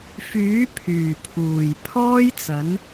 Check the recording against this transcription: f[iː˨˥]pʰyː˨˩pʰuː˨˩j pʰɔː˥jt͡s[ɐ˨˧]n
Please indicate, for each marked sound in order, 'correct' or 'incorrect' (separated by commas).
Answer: incorrect, incorrect